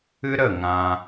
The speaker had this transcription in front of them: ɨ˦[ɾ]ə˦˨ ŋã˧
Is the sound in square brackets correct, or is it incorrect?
correct